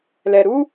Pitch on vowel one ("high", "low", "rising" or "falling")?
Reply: low